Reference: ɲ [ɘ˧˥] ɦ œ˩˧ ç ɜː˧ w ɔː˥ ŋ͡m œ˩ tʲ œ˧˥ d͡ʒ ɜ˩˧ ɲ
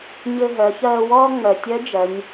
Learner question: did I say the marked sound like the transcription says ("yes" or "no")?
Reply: no